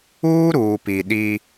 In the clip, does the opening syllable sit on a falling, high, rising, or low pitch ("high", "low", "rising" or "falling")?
high